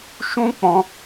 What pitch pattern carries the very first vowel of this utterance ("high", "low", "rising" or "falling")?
high